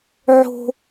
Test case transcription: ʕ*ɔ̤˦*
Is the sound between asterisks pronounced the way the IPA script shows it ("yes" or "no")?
no